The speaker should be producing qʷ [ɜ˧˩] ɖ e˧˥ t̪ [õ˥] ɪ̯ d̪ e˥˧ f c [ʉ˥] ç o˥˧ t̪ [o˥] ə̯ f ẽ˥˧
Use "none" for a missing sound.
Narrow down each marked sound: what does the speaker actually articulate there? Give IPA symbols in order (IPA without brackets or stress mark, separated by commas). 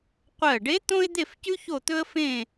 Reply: ɜ˧˩, õ˥, ʉ˥, ɵ˥